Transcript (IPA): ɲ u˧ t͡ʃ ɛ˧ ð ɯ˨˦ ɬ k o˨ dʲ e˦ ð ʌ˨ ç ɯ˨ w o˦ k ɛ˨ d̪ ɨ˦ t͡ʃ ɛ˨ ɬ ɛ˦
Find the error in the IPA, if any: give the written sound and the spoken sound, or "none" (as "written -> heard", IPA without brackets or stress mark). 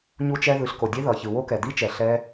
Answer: ɨ˦ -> i˦